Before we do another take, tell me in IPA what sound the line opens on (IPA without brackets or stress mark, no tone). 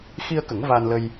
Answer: x